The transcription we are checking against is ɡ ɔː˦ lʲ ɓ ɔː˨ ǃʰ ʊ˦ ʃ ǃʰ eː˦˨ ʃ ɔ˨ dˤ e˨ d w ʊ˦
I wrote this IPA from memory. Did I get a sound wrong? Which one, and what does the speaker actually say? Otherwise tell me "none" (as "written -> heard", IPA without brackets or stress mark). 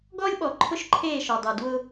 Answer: none